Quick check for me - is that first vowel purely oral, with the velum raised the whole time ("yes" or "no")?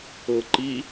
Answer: yes